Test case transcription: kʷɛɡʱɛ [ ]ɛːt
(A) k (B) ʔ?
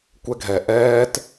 B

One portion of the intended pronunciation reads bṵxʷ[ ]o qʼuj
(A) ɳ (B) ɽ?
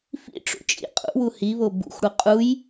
B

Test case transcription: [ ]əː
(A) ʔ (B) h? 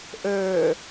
A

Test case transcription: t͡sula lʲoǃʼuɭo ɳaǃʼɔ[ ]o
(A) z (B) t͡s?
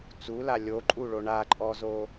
A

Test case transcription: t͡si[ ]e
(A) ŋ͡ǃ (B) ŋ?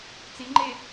A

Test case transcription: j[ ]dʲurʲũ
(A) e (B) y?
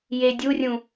A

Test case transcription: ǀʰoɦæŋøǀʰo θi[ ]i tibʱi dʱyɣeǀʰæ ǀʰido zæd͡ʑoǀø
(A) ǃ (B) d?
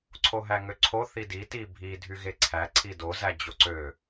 B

